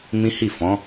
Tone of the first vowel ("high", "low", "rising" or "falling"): high